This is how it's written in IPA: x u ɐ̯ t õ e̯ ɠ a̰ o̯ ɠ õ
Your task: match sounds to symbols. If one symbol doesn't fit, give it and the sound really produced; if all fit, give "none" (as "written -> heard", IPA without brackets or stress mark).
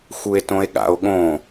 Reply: ɐ̯ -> e̯